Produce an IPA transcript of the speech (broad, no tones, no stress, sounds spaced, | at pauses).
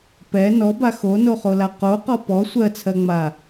p ɛ n ɔ b a x o n o χ o l a q o q ɔ p ɔ sʷ ɜ t͡sʰ ɜ ŋ͡m a